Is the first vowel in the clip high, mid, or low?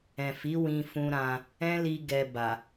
mid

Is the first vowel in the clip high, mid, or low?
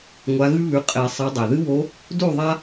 low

